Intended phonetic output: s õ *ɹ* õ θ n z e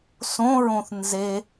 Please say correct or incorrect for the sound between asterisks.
correct